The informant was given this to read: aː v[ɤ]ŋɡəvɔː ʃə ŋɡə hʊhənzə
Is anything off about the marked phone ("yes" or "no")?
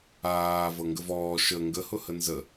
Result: no